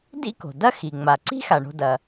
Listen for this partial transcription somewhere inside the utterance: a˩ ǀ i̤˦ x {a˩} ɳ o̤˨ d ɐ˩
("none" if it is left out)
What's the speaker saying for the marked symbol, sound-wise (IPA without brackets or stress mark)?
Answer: a˩